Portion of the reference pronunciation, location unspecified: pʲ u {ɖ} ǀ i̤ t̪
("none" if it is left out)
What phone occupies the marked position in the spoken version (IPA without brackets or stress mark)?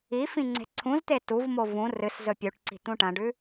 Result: ʈ